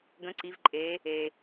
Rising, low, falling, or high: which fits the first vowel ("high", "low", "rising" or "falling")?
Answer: rising